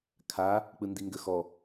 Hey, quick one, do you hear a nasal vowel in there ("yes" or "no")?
no